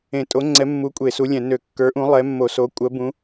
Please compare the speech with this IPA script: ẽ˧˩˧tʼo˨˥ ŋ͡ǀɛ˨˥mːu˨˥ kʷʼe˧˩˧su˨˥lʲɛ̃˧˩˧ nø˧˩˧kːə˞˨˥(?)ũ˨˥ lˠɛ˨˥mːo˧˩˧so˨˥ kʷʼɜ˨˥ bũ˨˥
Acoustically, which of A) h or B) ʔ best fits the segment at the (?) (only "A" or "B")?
B